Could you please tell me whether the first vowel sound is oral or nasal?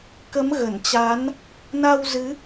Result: oral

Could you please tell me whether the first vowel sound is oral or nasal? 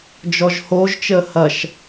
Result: oral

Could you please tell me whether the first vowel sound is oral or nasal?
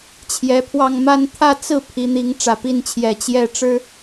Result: oral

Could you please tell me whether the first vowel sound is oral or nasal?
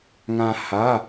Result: nasal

